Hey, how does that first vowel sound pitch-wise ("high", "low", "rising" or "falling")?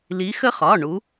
rising